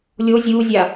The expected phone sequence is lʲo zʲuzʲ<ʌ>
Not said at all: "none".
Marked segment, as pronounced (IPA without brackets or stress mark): a